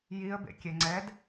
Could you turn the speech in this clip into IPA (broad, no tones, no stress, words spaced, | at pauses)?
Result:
jiə̯bḛkʲe ŋ͡ǀɛd